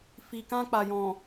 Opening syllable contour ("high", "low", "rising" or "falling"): low